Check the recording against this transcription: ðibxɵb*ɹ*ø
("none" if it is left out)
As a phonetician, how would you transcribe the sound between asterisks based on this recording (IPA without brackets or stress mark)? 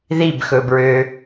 ɹ